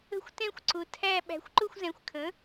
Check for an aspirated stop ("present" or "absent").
present